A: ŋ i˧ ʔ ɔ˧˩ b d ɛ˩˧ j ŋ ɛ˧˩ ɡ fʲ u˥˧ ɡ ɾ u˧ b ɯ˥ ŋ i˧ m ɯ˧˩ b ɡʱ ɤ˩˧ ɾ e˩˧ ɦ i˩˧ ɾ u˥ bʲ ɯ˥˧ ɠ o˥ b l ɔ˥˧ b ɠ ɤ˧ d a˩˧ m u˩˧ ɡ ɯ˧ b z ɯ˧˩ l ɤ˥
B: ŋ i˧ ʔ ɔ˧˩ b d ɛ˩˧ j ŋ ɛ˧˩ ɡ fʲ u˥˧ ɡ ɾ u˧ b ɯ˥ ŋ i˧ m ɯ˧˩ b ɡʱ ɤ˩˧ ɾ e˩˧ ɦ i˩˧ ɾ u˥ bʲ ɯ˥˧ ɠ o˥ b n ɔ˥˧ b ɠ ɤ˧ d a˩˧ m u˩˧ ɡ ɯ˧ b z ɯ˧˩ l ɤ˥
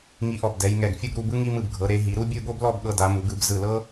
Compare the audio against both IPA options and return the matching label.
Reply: A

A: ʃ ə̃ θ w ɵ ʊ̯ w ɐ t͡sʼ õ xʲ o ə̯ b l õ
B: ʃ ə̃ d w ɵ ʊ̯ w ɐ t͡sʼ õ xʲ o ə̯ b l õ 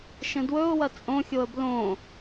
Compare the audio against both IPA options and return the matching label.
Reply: B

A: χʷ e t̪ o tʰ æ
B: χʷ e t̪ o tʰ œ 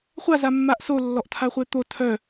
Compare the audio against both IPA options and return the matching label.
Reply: B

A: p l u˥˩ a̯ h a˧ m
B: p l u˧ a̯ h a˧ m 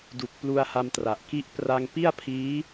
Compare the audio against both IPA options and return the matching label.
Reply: B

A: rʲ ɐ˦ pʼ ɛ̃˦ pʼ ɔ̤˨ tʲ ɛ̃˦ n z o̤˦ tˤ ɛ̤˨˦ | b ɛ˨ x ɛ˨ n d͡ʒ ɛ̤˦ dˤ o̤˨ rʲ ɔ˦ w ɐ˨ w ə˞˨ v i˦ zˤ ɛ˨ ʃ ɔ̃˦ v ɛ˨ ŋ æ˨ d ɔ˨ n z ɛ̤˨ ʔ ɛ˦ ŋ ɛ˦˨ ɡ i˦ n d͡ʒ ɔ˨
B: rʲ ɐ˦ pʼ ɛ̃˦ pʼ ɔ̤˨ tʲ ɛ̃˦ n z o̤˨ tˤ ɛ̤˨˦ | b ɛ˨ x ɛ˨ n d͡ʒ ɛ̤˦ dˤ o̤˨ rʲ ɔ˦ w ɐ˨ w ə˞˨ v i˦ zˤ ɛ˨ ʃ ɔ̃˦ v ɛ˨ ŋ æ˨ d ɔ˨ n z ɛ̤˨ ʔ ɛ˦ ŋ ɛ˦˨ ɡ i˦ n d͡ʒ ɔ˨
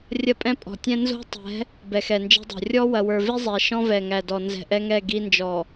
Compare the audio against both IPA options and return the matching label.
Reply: A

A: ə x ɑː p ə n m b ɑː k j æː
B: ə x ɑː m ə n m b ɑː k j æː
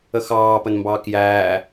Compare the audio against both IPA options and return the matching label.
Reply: A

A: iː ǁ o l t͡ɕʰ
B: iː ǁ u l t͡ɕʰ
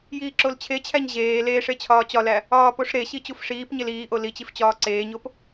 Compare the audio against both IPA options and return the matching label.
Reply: A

